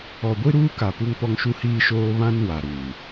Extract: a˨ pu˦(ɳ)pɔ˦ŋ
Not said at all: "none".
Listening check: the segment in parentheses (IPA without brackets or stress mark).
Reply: ŋ